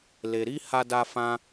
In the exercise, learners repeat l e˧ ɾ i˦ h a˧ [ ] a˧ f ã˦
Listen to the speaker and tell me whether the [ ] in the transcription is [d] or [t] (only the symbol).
d